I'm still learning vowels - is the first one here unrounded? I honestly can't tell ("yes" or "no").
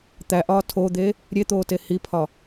yes